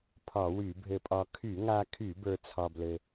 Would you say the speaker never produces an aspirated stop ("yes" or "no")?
no